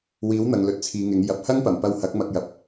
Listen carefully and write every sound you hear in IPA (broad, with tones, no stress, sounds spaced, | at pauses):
w iː˨˥ w n̪ ɐ˨ ŋ l ɵ˧ t̚ t͡sʰ iː˨˧ ŋ ɪ˨˥ ŋ j ɐ˨ p̚ h ɐ˥ ŋ p ɐ˨˩ m p ɐ˧ w h ɐ˨˥ k̚ m ɐ˧ k̚ j ɐ˨ p̚